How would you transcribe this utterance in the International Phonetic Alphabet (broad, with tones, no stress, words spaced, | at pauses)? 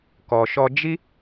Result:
kɔ˨ʃɔ˧d͡ʒi˦